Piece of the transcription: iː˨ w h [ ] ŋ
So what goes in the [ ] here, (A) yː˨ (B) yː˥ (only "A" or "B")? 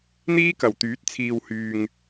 A